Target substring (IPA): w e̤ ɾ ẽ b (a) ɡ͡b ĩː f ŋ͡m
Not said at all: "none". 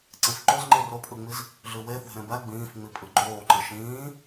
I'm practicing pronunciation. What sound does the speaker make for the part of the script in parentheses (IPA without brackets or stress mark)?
æ